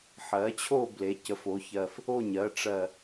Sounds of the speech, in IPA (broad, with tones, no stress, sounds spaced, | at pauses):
ħ ɜ˩˥ t͡ɕʰ o˥˩ b l e˩˧ c ə˩˧ f o˩˥ ç ɜ˨˩ f | o˥˩ ɲ ɜ˩˥ ʈ͡ʂ ɜ˨˩